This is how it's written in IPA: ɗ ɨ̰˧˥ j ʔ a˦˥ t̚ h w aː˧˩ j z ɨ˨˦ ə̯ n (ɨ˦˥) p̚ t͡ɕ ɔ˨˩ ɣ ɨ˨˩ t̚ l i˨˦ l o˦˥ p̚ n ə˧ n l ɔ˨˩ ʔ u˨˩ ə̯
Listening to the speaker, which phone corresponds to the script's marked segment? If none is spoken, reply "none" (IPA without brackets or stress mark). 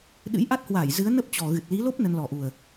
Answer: ə˦˥